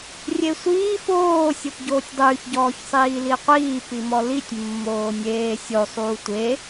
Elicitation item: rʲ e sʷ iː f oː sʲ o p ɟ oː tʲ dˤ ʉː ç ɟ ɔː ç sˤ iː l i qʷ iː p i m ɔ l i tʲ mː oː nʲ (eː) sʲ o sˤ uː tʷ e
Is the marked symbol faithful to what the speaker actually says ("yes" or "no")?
yes